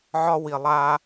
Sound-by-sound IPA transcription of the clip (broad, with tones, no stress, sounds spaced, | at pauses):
ʕ ɒ˦ w i˨ lˠ a˦